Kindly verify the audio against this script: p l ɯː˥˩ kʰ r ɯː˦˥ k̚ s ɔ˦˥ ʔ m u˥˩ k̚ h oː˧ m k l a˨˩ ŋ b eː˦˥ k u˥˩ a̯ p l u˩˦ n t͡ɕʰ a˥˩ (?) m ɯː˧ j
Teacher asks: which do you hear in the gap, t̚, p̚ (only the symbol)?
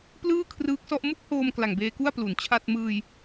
t̚